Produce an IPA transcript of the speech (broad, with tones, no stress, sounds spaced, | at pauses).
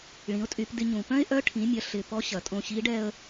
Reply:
ɭ ĩ˩˧ ʊ̯ tʼ y˩˧ p d ɪ˧ ɲ ũ˩ p œ̃˥ ɪ̯ ʔ œ˧˥ ʈʰ ĩ˩˧ mʲ ɐ˩˧ ɬ ɪ˩ p ɔ˧˥ ɕ ɐ˩ tʼ õ˧ ɕ i˧˥ ɖ ɛ˧ ə̯